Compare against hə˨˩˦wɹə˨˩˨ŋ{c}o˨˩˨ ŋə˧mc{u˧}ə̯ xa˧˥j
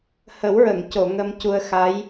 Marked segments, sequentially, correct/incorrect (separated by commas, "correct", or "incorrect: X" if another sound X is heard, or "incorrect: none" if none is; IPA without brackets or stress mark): correct, correct